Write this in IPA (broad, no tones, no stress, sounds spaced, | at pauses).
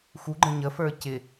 x u ɡ͡ǃ ə̃ ɲ ə f ə˞ c ɪ